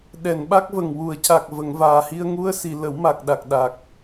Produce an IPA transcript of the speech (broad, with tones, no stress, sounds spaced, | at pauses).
ɗ ɛ˨˩˨ n ɓ a˦˥ k̚ v ə˨˩ ŋ w u˨˩˨ ə̯ c a˨˩ k̚ v ə˨˩˨ ŋ v aː˨˩ h i˧ ə̯ ŋ u˧ ə̯ s i˨˩˨ l ə˨˩˦ w m a˨˩ k̚ ɗ a˨˩ k̚ ɗ a˨˩ k̚